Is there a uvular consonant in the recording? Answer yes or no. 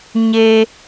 no